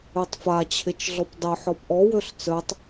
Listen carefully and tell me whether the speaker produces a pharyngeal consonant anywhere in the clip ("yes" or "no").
yes